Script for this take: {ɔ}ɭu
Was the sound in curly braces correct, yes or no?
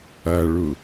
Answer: no